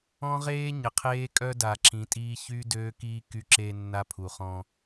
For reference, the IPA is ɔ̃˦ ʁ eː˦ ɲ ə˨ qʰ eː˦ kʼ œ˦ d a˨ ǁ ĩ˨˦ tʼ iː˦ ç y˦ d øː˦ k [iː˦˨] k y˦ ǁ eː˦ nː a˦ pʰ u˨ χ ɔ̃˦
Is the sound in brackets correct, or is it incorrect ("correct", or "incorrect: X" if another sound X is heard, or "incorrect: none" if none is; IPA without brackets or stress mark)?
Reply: incorrect: iː˦